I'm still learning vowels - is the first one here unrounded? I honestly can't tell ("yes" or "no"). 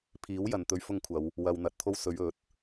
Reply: yes